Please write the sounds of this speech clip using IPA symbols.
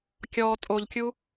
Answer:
kʲɔ tʼoʎkʲu

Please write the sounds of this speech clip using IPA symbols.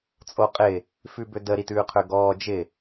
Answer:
t͡sʼoqʼɪ | fʉbødə ɾitʉːqʰøɡɔː d͡ʒɪ

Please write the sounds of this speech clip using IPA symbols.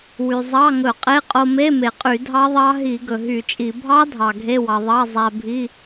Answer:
wy˩zˤɑ˧˥˧ŋɵ˧˩˧qʼe˧˥˧ qʼo˧me˧˥˧me˩qʼy˧˩˧ dʱɑ˦˥ðˤɑ˦˥ ɦi˧˩˧ ɡɵ˩ɦy˧˩˧t͡ʃʼi˧˩˧ bʱɑ˦˥dʱɑ˩ ɡʱe˧˥˧wɑ˩ ðˤɑ˧˥˧ zˤæ˧bʱi˧˥˧

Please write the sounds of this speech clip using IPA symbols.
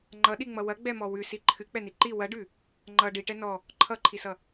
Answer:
ŋ͡ǃʌɗiŋ͡mʌ wɐɡ͡bɛmɔ wʉsi ǃʰɨk͡pɛni ǃi wɐɖʉ | ŋ͡ǃʌ ɖiʈɛ nɔ | ǃʰʌǃʰisʌ

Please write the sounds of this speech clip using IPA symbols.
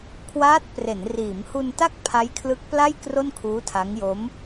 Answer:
kʰwaː˦˥t̚pre˩˦n riː˩˦mhu˧nta˥˩k̚ pʰa˦˥jkʰlɯ˦˥k̚pla˥˩j kro˥˩nkʰuː˦˥tʰa˦˥ŋjo˦˥m

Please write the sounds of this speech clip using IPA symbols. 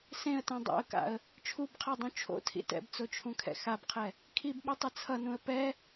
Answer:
sẽə̯tẽ dˤo̰ə̯ka̰ə̯ | t͡ʃʰubqʰadˤũ t͡ʃʰo̰tʰḭ tɛ̰bt͡sot͡ʃʰũkʰɛ̰ xabqʰɛ | kʰibɓotˤɯ t͡sʰʌnũə̯ pɛ

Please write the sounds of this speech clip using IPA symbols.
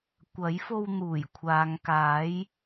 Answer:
kʷɐ˨˥jfo˧wn̪uː˨˩j kʷʰaː˨˧ŋkaː˨˥j

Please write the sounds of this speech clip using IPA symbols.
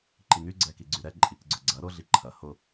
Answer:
ǃiŋyɡ͡ǀɛ kiɡ͡ǀyɾɛ ǃʼikɡ͡ǀʊɡ͡ǀɐ ɾʊɮi ǃʰɐ hʊ

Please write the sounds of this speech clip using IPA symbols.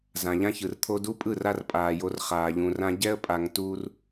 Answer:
zã˨ʎã˦çɯ˨rt̪ʰo˦ du˦pʼɯ˦˨ ra˦r pʼaː˨jo˨˦r χaː˨ʎũ˨rã˦ ɟɛ˦ə̯pʼa˨ŋ tu˦r

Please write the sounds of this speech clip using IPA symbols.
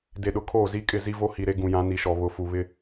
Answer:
de˨ɗʊ˨ kʰoː˦˨zi˦ kʼɪ˦˨zi˦vo˦ hi˨ɾe˦ɡũ˨jã˨˦ ni˨ʃɔ˨ βʊ˨fu˨ βɪ˦

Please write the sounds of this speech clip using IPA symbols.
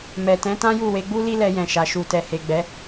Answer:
mɛ˨tɛ̃˨˦ tã˦ju˦˨we˧ɡ͡bu˦ li˦lɛ˧ jɛ̃˨ʃa˨ ʃu˨tɛ˨he˨ ɡ͡bɛ˨˦

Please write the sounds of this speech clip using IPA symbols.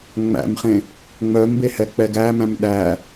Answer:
ŋ͡mæ̰mχẽ | ŋ͡mœmbehɛk͡pɛ ɡæmæ̃m ɗæ

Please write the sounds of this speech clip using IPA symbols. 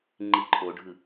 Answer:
ŋ͡ǃiǃʰoɖʱɯ

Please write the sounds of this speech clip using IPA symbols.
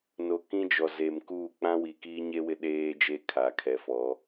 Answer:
no˨ kĩ˦d͡ʒɔ˨ze˨mkuː˦˨ k͡pã˦wi˨kiː˦ ɲe˦ wɪ˦ɗeː˦d͡ʒe˦ kʰa˨kʰɛ˨˦fɔ˨˦

